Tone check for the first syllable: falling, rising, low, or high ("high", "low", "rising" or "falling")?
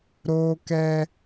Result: high